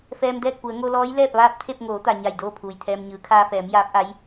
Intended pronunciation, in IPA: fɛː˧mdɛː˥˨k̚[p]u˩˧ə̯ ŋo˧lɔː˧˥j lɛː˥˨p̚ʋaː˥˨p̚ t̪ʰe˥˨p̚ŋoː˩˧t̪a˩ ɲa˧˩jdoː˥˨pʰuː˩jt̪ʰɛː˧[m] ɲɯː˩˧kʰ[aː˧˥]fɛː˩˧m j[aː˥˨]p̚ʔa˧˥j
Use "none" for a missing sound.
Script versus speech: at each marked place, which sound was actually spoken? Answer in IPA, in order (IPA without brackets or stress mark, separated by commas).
p, m, aː˧, aː˧˥